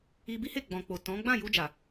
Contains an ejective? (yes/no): no